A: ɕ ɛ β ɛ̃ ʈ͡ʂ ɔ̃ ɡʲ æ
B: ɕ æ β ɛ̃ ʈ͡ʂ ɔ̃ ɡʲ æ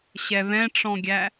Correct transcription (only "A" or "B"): A